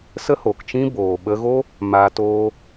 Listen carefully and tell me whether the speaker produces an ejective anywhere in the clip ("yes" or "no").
no